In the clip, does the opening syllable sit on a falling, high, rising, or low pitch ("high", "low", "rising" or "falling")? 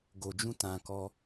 low